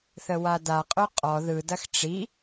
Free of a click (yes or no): yes